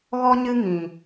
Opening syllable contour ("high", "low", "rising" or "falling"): high